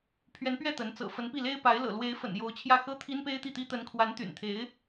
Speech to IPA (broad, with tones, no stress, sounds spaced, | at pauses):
pʰ ɥ ɛ˧˥ n p ɥ ɛ˥˩ t̪ ə˧˥ n t͡s ɤ̰˨˩ f ə˧˥ n p i˥˩ l e˥ ɪ̯ p a˧˥ ɪ̯ l ɤ̰˨˩ l w e˧˥ ɪ̯ f ə̰˨˩ n j o˧˥ ʊ̯ t͡ɕʰ j ä˥˩ x ɤ˥ t̪ʰ i˥ n p e˥ ɪ̯ t̪ i˥˩ t̪ i˥ t̪ ə˧˥ n kʰ w a˧˥ n t̪ y̰˨˩ n t̪ʰ e˧˥ ɪ̯